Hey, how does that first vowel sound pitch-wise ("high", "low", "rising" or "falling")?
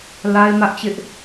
high